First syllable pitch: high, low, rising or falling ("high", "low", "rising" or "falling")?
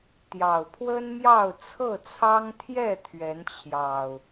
low